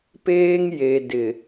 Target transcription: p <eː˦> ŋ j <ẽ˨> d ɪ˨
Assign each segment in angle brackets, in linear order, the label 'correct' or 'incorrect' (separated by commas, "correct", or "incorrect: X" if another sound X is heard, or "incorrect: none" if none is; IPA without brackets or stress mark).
correct, incorrect: e˨